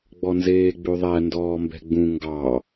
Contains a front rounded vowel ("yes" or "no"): no